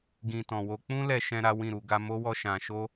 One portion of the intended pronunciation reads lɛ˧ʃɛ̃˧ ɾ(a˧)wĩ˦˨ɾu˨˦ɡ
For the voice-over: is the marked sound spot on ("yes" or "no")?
no